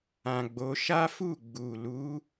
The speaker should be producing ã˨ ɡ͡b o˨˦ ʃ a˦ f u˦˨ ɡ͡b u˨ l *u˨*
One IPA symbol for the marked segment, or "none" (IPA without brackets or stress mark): u˨˦